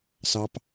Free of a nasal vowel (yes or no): yes